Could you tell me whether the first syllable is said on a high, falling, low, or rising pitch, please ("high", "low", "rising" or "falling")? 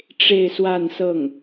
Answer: falling